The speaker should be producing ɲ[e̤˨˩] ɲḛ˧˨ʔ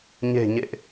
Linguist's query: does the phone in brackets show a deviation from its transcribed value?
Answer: no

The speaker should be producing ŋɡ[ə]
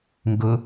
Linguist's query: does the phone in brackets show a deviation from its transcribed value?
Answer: yes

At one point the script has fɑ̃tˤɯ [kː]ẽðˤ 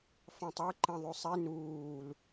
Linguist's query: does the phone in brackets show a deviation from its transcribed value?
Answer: yes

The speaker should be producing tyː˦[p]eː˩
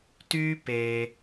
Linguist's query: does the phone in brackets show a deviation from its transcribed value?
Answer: no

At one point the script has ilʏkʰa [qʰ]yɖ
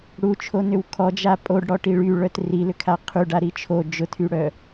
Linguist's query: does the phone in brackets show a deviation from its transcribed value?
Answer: no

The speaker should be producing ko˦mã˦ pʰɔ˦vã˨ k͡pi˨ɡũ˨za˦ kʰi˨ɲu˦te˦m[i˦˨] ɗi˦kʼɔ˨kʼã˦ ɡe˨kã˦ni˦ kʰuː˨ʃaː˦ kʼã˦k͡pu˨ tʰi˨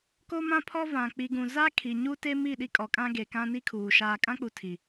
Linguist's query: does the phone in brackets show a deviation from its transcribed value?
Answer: no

